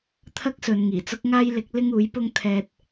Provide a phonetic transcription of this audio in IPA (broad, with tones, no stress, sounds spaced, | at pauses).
t̪ʰ ɐ˥ k̚ s ɵ˨˧ n ŋ iː˨˩ t͡s ʊ˥ k̚ ŋ aː˥ j l ɪ˨˥ k̚ l ɪ˥ ŋ uː˨˥ j p ʊ˥ ŋ t̪ʰ ɛː˧ t̚